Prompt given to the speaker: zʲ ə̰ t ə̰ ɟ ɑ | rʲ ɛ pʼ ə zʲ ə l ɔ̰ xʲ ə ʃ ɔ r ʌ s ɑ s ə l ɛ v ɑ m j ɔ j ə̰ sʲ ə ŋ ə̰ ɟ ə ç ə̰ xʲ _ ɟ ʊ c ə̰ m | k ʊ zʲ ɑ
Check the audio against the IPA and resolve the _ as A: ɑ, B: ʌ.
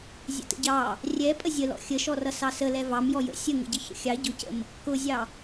A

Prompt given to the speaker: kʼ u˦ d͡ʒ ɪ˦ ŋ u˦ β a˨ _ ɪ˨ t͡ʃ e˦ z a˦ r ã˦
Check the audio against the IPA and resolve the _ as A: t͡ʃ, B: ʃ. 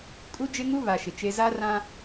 B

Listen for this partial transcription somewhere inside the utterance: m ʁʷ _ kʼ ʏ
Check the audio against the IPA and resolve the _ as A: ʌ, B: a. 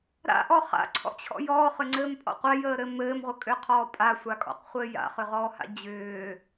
A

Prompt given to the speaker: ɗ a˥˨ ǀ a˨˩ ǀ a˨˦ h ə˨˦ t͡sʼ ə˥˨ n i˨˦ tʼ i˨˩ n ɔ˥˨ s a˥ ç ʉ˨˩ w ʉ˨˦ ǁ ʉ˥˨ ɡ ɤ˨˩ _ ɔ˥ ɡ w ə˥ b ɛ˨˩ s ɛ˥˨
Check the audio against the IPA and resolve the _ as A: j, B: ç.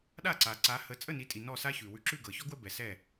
B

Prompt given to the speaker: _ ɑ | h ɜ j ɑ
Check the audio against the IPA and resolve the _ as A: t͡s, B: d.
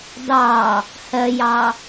B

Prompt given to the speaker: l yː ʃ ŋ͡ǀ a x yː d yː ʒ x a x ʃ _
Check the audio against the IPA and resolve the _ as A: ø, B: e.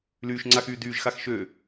A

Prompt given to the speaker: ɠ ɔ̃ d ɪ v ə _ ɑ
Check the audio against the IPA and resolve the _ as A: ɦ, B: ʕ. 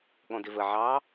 B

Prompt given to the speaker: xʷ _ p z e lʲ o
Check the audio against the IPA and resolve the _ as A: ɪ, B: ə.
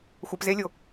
B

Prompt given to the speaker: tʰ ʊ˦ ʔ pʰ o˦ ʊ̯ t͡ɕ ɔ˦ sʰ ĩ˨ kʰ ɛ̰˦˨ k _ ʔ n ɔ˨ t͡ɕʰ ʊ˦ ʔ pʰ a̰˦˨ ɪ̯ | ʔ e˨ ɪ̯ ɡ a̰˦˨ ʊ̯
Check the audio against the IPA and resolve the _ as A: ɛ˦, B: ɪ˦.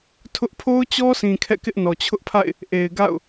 B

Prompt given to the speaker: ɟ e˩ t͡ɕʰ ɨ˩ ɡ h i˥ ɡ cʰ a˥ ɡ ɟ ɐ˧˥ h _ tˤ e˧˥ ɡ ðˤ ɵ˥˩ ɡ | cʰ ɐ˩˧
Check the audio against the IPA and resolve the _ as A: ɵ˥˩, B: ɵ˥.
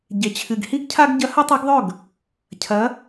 B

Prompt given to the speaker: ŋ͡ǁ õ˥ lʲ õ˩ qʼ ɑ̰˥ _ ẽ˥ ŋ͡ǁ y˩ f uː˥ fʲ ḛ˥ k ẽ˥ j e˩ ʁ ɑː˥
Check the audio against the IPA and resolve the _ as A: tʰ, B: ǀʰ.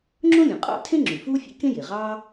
A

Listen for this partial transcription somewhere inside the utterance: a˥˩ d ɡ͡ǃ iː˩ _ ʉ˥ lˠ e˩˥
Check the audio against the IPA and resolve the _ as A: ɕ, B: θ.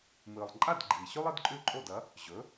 A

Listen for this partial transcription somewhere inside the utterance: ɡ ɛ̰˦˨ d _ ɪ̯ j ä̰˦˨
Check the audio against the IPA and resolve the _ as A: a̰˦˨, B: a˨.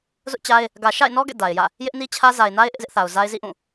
B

